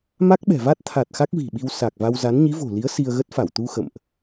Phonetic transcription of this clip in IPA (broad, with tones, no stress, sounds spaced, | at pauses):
m a˦˥ k̚ ɓ ɛ̤˨˩ v a˦˥ t̚ t̪ʰ a˨˩ t̚ x a˦˥ k̚ v i̤˨˩ ɓ i˧ w s a˨˩ k̚ v a˧ w z a˨˦ n ɲ i˨˦ v o̤˨˩ l i˨˦ ə̯ s i˧ ə̯ ɣ ə˦˥ t̚ f a˧˩ w t̪ u˧ x ə̰˧˨ m ʔ